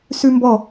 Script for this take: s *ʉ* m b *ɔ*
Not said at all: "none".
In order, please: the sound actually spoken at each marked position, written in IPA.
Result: ʉ, ɔ

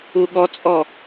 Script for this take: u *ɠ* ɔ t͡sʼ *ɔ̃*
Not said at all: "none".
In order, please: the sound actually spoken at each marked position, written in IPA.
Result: ɠ, ɔ

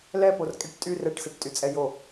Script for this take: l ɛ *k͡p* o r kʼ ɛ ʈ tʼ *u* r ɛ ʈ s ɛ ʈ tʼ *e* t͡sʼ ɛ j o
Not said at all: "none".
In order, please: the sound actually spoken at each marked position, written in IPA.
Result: p, y, y

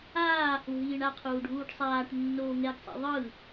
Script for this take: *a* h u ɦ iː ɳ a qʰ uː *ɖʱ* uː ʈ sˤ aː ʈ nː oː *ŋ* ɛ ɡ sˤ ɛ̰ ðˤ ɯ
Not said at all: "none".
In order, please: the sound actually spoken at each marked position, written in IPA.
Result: aː, ɖʱ, ŋ

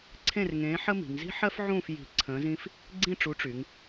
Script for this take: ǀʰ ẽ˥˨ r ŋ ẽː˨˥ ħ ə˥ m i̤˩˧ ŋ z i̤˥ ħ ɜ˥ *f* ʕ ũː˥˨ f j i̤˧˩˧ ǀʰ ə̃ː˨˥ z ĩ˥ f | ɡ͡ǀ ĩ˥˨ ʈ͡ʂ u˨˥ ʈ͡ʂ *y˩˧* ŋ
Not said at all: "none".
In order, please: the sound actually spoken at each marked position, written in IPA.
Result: f, y˩˧

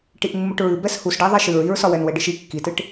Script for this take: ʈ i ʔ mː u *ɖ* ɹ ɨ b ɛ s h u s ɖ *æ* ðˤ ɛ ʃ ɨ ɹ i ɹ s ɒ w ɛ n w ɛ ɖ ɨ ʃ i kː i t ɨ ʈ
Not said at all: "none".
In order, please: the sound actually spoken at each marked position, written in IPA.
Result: ʈ, æ

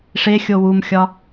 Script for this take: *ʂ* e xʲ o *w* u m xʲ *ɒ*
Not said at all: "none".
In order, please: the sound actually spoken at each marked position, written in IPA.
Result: ʂ, w, ɒ

